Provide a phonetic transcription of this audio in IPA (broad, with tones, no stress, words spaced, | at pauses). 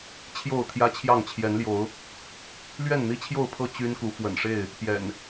t͡ɕʰjo˥˨ʊ̯t̪ʰjä˦t͡ɕʰjɑ˥˨ŋ t͡ɕʰjɛ˨˦nljo˨˦ʊ̯ | lɥɛ˥˨nn̪i˦t͡ɕʰjo˥˨ʊ̯pʰɤ˥˨ t͡ɕy˦nku˨˦ fwə̰˨˩nʂe˥˨ɪ̯ | pjɛ̰˨˩n